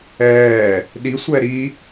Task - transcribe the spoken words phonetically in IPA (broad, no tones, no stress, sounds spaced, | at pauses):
ɛː | ɗ i sʷ ɛ ɾ i